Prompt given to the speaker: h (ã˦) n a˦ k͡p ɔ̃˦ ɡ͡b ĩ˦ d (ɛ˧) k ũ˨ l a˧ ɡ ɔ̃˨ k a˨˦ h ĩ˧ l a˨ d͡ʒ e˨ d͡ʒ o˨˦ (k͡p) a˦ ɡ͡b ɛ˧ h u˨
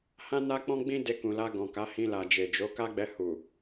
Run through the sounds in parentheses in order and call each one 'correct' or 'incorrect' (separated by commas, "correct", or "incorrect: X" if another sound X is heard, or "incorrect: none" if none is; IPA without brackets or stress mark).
correct, incorrect: e˧, incorrect: k